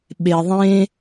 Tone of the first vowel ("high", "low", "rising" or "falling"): low